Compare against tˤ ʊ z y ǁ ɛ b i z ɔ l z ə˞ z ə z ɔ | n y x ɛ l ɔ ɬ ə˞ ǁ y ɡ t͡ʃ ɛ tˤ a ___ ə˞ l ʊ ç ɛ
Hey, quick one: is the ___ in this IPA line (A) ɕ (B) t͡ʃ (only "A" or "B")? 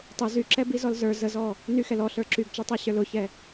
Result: A